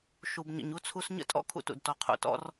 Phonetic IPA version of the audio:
ʃ u˨ b ɲ ə̰˨ ɲ u˦ t͡sʰ u˦ s ɲ ə̰˦ tʼ ɔ̰˦ kʰ ṵ˦ t ṵ˨ d t ɔ˨ qʰ ṵ˨ t ɔ̰˦ r

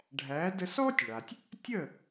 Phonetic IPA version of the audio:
ɖʱ æ˩˥ d ə˧ s ɔː˥ tʲ ɭ a˩ tʲ | tʲ ə˥˩

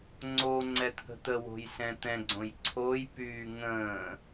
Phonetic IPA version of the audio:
ŋ͡ǀ o ŋ͡ǀ ɛ t̪ʰ ə̤ t̪ ə w o̤ j s ɛ̃ t̪ ɛ̃ ɡ͡ǀ õ j ǀʰ o j p yː ŋ ə̃ː

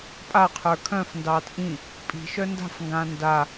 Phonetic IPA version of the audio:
pʼ a qʰ ə˞ kʰ œ̃ f n d ɑː t ʔ ĩ | pʼ i̤ ʃ œ n d a̤ f ŋ ɡ ãː n d a

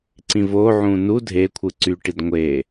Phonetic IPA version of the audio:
ǀ ĩ v o ʕ ũː n u dʱ eː kʷʰ ɯ ǀ y ʈ i d ŋʷ e

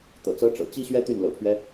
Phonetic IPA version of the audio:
t̪ ɤ̰˨˩ t͡s ɤ˧˥ ʈ͡ʂ ɤ̰˨˩ t͡ɕ i˥ ɕ ɥ ɛ˥ t̪ y˥˩ n l ɤ̰˨˩ pʰ ɥ ɛ˦

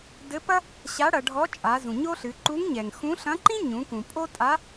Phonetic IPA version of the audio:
d ɘ˧˥ p ɐ˥ | ɕ a˧˥ ɽ ɐ˩˧ ɖʱ ɔ˧˥ t͡ʃʼ a˩˧ z ũ˩ ɲ o˥ ɬ ɨ˩˧ ǃ u˧˥ ŋ ɲ ɛ˩ ŋ x ũ˧˥ ɬ ɐ̃˧˥ ǃ ĩ˥ ɲ ũ˩˧ k ũ˩ pʼ o˥ tʼ a˧˥

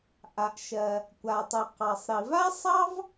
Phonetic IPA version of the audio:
ʔ a˩ ʔ ʃ ɜ˩ | kʷ a˩ tˤ u˩ q ɑ˩ sˤ ɾ i˩ v a˥ sˤ ɑ˥ v

